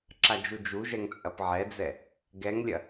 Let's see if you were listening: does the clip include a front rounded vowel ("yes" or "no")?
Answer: no